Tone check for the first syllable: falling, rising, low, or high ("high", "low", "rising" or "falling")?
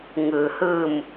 low